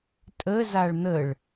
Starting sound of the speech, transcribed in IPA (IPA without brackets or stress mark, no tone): tʼ